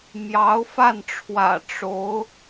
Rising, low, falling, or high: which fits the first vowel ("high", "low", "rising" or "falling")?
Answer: rising